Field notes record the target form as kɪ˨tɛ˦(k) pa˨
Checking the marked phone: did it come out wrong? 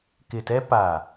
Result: yes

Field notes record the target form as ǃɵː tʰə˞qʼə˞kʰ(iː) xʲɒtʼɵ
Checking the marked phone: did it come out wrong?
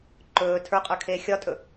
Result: yes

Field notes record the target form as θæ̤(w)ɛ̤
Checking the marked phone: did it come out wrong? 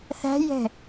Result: yes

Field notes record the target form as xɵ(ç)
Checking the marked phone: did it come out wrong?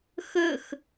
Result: yes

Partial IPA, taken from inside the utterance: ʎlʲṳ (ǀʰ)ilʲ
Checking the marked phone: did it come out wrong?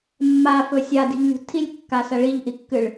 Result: yes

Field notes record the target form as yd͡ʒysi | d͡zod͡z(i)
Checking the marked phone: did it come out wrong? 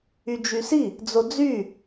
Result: yes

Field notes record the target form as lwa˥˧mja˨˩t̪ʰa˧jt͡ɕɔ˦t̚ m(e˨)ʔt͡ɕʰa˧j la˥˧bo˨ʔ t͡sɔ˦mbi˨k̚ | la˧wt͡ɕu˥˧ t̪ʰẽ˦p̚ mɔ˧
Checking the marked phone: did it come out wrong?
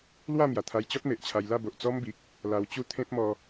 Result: no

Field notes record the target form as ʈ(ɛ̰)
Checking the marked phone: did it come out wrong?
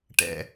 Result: no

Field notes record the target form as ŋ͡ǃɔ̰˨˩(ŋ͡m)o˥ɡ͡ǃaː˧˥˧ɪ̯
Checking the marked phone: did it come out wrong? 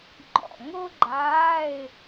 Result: yes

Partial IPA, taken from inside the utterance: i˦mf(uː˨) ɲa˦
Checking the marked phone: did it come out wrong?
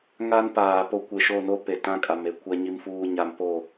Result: yes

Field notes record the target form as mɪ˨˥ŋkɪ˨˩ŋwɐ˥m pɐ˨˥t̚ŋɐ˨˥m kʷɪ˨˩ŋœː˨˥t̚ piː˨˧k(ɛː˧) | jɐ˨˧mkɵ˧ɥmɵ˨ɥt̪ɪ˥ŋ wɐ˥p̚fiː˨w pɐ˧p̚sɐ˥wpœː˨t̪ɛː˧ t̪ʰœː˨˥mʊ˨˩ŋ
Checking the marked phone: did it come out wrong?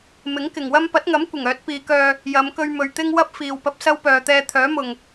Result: yes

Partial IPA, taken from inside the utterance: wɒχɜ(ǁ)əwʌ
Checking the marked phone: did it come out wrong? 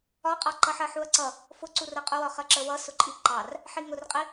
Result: no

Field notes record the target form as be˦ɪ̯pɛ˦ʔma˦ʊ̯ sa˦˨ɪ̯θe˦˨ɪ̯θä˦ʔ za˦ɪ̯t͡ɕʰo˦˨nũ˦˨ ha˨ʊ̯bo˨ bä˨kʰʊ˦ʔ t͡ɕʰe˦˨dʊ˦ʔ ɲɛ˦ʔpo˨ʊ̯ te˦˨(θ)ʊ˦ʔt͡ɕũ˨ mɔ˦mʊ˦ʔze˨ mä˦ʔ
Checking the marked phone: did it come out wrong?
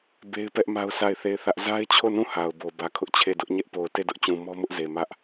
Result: yes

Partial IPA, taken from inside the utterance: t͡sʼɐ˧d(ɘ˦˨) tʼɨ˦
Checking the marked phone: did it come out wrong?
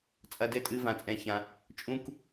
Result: no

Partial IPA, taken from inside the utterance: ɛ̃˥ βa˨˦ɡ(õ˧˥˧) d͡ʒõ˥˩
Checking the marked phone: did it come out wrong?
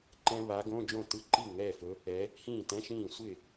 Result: no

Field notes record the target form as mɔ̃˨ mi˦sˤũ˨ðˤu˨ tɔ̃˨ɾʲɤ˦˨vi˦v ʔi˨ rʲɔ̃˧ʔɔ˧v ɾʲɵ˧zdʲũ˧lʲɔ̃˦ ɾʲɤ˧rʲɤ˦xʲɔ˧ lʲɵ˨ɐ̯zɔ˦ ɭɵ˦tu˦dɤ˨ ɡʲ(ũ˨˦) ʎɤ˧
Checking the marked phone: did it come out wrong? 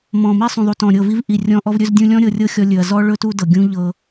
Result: yes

